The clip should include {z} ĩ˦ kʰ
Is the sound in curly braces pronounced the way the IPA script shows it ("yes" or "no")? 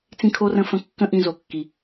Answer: no